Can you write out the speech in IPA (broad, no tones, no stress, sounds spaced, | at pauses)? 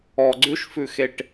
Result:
ɔ ɡ͡ǀ ʉ ʃ f ʉ x e ʈ